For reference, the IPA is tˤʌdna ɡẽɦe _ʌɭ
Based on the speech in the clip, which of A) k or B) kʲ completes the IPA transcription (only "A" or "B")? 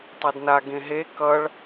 A